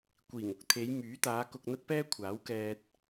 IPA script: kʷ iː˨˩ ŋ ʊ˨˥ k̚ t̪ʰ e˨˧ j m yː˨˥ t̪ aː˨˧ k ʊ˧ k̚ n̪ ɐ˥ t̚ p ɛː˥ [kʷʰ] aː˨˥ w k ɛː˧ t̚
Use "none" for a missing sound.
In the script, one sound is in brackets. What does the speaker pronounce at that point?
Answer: kʷʰ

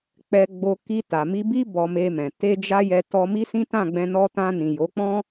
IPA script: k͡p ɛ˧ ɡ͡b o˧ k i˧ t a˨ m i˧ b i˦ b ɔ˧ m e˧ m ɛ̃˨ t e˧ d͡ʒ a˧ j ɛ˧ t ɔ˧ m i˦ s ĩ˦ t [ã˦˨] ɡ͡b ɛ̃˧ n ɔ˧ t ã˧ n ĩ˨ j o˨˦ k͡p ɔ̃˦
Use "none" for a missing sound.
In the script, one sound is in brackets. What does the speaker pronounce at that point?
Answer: ã˦˨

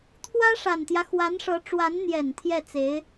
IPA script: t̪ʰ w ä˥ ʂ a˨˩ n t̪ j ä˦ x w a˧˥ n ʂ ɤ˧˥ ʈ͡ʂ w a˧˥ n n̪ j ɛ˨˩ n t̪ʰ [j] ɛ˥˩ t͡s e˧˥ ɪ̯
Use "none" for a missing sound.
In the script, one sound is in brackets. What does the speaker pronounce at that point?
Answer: j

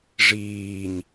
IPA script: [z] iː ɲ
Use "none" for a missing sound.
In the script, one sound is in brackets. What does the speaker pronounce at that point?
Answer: ʐ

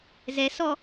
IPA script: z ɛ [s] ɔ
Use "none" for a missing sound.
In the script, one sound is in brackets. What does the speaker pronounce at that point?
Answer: s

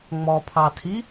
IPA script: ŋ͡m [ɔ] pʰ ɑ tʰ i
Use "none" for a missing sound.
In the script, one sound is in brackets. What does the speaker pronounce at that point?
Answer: ɔ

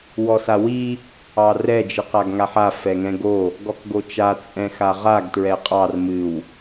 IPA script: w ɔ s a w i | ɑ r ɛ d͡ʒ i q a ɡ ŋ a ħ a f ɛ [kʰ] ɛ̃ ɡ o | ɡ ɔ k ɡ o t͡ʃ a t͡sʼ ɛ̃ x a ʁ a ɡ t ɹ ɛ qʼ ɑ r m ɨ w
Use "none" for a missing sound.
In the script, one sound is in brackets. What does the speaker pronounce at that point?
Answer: ŋ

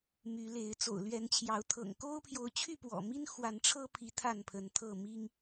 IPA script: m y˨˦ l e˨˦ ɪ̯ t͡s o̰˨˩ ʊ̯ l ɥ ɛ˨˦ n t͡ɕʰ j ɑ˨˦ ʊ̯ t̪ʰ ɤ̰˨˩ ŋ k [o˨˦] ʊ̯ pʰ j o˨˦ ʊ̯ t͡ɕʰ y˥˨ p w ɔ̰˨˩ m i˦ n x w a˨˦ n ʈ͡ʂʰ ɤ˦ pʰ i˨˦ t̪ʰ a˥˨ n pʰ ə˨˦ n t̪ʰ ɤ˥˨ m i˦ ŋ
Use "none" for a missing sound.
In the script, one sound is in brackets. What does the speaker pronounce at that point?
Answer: o˦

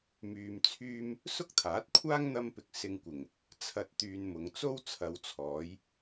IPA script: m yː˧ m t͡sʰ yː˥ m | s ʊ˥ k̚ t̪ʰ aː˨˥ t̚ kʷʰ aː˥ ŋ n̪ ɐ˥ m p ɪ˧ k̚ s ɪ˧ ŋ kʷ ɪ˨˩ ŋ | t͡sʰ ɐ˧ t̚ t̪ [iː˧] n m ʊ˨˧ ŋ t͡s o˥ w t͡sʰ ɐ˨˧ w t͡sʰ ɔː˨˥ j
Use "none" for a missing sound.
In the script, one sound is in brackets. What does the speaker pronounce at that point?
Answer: yː˧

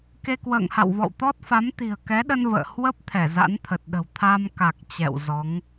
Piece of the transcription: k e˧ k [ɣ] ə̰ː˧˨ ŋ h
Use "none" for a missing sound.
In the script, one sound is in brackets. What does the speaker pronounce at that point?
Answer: w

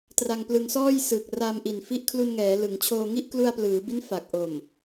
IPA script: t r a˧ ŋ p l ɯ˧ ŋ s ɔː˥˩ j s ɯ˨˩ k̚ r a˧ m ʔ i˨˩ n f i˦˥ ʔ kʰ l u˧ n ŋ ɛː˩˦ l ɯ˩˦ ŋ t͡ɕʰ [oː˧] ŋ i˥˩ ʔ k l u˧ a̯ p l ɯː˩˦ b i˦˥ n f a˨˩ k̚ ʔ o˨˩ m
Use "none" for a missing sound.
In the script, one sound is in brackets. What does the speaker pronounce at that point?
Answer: oː˧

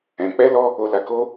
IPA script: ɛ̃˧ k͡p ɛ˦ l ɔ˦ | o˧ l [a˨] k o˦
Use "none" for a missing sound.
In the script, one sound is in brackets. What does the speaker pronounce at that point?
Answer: a˧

